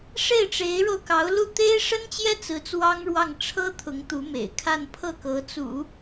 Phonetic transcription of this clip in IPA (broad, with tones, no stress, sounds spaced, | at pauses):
ʂ e˥˩ ɪ̯ ʈ͡ʂ e˧˥ ɪ̯ ɻ o˧ ʊ̯ k ɑ˧˥ ʊ̯ l u˥˩ t̪ e˥ ɪ̯ ʂ ə˥ n t͡ɕ j ɛ˥ t͡s ɹ̩˧˥ t͡s w ɑ˥ ŋ ɻ w ɑ˥˩ ŋ ʈ͡ʂʰ ɤ˥ t̪ʰ ʊ˧˥ ŋ t̪ u˧˥ m ḛ˨˩ ɪ̯ kʰ a˥˧ n pʰ ɤ˥˩ k ɤ˧˥ t͡s ṵ˨˩˦